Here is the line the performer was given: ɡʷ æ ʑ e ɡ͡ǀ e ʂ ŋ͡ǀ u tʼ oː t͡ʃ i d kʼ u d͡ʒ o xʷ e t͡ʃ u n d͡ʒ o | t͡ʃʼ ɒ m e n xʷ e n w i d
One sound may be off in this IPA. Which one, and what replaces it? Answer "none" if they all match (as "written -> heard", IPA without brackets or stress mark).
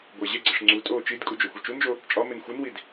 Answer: none